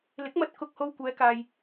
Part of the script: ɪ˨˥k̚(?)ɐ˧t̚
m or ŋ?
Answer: m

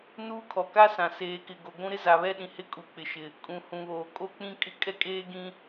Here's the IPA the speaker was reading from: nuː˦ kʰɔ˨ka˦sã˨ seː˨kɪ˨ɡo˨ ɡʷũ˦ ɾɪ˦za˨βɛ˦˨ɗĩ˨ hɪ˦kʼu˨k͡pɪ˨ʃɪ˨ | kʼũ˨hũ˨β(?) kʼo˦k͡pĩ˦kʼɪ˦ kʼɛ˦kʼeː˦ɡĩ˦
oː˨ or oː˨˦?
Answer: oː˨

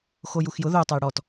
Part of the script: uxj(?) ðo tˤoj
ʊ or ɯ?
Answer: ʊ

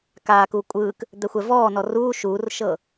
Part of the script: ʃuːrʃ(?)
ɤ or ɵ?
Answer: ɤ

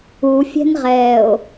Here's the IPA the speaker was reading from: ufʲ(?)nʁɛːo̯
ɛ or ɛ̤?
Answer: ɛ̤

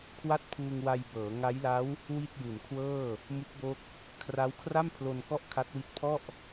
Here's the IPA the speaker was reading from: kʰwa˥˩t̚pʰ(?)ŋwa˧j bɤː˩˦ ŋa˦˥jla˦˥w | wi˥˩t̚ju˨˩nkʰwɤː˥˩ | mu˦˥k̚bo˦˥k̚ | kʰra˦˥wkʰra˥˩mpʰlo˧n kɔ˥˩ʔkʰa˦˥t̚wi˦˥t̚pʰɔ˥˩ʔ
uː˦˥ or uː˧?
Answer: uː˧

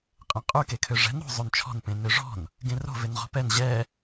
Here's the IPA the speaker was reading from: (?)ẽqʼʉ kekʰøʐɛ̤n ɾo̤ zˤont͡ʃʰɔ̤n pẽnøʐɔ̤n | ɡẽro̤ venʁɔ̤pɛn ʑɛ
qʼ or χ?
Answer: qʼ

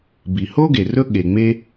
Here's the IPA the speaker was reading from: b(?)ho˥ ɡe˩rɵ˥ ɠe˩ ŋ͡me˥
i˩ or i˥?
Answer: i˩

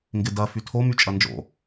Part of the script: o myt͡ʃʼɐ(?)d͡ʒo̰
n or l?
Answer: n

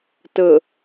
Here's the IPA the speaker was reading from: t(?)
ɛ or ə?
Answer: ə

